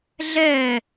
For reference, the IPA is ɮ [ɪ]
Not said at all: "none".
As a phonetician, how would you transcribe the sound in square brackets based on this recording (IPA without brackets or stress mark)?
ɛ